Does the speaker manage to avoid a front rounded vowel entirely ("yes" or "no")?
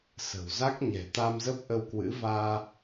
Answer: yes